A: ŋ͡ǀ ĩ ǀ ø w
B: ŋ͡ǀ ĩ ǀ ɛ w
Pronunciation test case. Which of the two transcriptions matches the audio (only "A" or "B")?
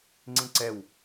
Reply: B